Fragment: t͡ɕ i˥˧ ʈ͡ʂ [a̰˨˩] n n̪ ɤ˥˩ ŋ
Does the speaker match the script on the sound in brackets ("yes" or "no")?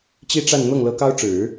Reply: no